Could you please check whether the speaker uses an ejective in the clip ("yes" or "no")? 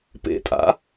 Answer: yes